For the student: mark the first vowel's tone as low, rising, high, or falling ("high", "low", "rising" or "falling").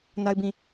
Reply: high